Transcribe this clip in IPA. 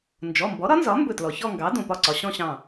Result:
n d͡ʒ ɔ˩˧˩ m b ɔ˩˥ ɾ ɒ˩˥ n z ɒ˩˥ m b ɵ˧˩ t l ɔ˩ ç ɔ˥˧ ŋ ɡ ɑ˩˥ d õ˩ p ɒ˧˩ ǀ ɒ˩ ɕ ɔ̃˥˧ ɕ ɑ̃˧˩

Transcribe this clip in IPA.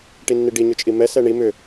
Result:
ʈ i nː i ɖ i ɲ ʏ t͡ʃʼ i m ɛ s ɛ ɳ i m ʏ

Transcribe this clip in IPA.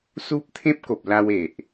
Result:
s u˦ p̚ t̪ʰ ẽ˦ p̚ k o˨ p̚ l a˧ w e˨ ʔ

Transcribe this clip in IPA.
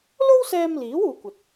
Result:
l o˥ w s ɛː˧ m l iː˨˥ w uː˧ kʷ ɐ˨ t̚

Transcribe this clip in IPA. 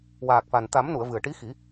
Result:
w aː˨˩ k̚ f a˨˩ n t̪ a˨˩˦ m n u˨˩˨ ə̯ v ɨ˨˩ ə̯ ʈ i˧˥ x i˨˩˦

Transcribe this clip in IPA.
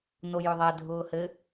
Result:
n o j ʏ ðˤ ɛ dʱ ʊː h ɘ

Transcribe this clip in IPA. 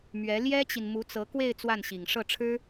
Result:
m ɥ ɛ˧˥ l j ɛ˥ t͡ɕ i˨ n m u˧˥ t͡s ɤ˧˥ k w e˥˧ ɪ̯ t͡s w a˥˩ n ɕ i˨˩ ŋ ʂ ɤ˥˩ ʈ͡ʂʰ ɻ̩˥

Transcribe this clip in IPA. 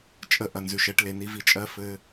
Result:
t͡ʃʼ ə˧ ʔ ɐ˨ n z ʉ˨ ʃ ɛ˦ ʈ l e˨ n i˧ v i˧ t͡ʃʼ ɜ˦ f ɘ˦

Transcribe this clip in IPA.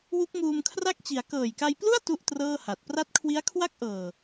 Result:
w u˦˥ k̚ m uː˧ m kʰ r a˥˩ k̚ t͡ɕ i˩˦ a̯ k ɤː˨˩ j k a˧ j p l u˥˩ a̯ t u˥˩ ʔ t r ɤː˥˩ h a˨˩ t̚ p r a˦˥ t̚ kʰ w i˦˥ a̯ kʰ w a˥˩ k̚ ʔ ɤː˨˩

